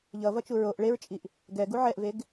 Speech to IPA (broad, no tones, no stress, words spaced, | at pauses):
ʎʌvʌt͡ʃu ɹoʔ ɭeɹt͡ʃʼiʔ | ɡɛɡu ʕɛʔveɡ